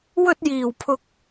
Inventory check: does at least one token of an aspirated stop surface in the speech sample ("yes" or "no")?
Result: yes